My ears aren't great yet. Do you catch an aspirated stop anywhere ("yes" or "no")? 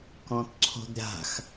yes